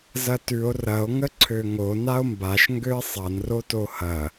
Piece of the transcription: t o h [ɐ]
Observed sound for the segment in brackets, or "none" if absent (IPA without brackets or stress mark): ɐ